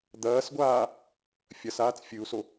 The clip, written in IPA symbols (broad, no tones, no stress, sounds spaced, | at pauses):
d̪ ɐː s ɡʷ aː | fʲ ɐ s aː t͡s fʲ ɨ u̯ s o